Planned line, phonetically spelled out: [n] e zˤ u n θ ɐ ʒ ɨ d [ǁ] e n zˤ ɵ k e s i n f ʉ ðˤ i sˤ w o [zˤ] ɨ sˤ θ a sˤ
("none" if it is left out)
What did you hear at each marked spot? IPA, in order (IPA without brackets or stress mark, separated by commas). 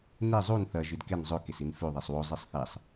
n, k, zˤ